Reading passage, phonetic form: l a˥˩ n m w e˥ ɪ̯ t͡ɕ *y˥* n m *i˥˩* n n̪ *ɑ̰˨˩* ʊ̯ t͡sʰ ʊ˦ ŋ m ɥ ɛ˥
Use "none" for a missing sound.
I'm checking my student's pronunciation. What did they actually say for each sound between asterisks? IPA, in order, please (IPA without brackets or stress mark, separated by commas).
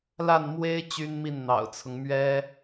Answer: y˥, i˥˩, ɑ̰˨˩